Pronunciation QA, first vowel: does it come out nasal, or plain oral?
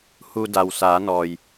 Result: oral